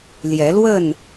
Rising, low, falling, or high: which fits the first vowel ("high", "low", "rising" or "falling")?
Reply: rising